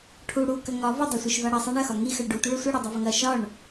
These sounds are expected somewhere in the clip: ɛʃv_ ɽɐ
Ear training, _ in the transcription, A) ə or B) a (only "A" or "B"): B